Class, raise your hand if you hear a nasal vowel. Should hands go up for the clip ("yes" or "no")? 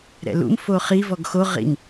no